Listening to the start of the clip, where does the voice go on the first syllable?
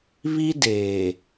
high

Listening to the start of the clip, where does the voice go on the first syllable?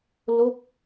falling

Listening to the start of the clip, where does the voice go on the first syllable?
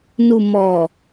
low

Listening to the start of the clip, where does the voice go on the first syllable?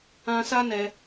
high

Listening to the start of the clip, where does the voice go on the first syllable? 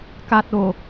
low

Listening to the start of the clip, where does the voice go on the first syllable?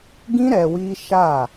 high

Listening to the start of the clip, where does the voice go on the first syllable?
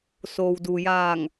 low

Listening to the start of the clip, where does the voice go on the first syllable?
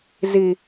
low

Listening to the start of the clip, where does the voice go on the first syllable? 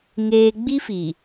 low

